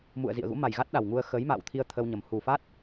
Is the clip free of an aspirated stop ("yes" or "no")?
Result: no